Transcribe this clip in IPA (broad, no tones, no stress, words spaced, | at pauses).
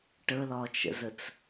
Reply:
ʈəlɒt͡ʃə̰zət͡s